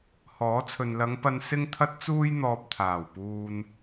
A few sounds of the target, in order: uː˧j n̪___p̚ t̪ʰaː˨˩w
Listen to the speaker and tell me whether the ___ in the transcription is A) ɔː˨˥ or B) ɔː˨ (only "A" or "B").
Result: B